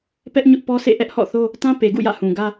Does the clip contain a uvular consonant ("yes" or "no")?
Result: no